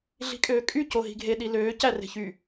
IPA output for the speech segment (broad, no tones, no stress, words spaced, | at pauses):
ɮi̤kʼøːkʼy coɦi̤ɡʱe ɗiløː cære̤çy